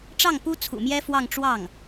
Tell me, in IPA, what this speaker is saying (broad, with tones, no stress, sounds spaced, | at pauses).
ʈ͡ʂ ɑ˥˩ ŋ p u˥ t͡sʰ ṵ˨˩ m j ɛ˥ f w ɑ˥˧ ŋ ʈ͡ʂ w ɑ˥˩ ŋ